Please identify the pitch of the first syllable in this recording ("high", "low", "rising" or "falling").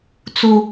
high